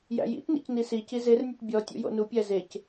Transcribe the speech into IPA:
jæ̰jḭtnḭc nisici zernʲɘt bʲɔ tʲṵjo̰nupʲæ zec

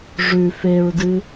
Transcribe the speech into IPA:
ʐʉ feɹdɨ

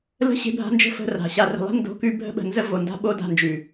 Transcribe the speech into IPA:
lə̤˦ ɕe̤˦bʱa̤˦nd͡ʒə̤˦ fə̤˦ra̤˨ ɕa˨rə̤˨lˠɛ̤˦ ndo̤˦kʉ˦ bʱə̤˦ɓə̤˨ nzə˦ vo˨nda̤˦ ɓo˦da̤˦˨nd͡ʒʉ˨

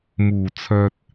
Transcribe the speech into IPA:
muː˨˩ t͡sʰœː˨t̚

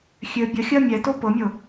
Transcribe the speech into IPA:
xʲø bʲəxʲɜ mʲɛto pɤmʲɤ

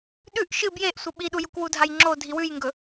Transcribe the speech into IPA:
ɗʉʔ ʃɨ bjeʔ sʷɐɓiɗujuk wudʱajŋ͡ǁo dʱiwʉjŋɡɵ

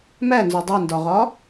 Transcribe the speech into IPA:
mænzo dˤindɒʁɒ

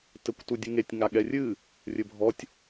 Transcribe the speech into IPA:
tɘkʷtudʲɨŋetʲ ŋaɠɛrʲɨ | rʲɘbʱɔtʲ

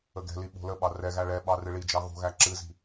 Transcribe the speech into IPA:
əɡɛ̤li ɓo̤ləɓɑ rɛɣæ ɭɛɓɑ rɨɭid͡ʒɑ ɣo̤ɣæ ǁɨzi̤

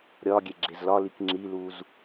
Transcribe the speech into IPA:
ɾʲɒ ɡʲeɡ͡ǁezlɒlik ŋ͡ǁiluz

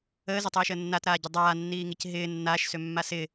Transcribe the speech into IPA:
əːzʏtˤiːʃəː nːatɾaːɟʏ dˤaːnːiːŋic ɦɪː nːaːʃsømːa sɪː

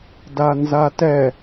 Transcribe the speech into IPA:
danzatɛ

